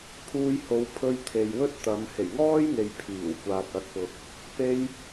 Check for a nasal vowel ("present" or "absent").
absent